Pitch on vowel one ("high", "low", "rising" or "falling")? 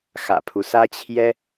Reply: low